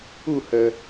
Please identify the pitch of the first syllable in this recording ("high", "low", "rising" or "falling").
falling